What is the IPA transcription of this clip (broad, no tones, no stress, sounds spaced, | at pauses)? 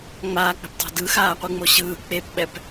ŋ͡m aː k͡p ɛ̤ p tˤ ɛ̤ d ɯ x aː qʷ ɯ ŋ͡m o ɕ ɯː k͡p e p ɓ ɛ p